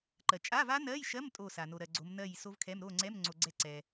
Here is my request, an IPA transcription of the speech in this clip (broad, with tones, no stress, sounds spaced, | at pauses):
ǃ ɜ˨ t͡ʃʼ a˧˥˧ v a˦˥ n ɜ˧˥˧ j ʃ ɜ˧˥˧ m tʼ o˥˨ s a˨ n o˨ ɾ ɜ˨ ɡ͡ǀ o˨˦ m n ɜ˥˨ j s o˦˥ v kʰ ɛ˧˥˧ m ɾ o˥˨ ŋ͡ǀ ɛ˧˥˧ m ŋ͡ǀ o˨ ɡ͡ǀ ɛ˥˨ ǀ ɛ˨